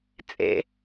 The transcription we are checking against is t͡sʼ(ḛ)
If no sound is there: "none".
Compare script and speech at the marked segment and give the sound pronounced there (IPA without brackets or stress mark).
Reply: ḛ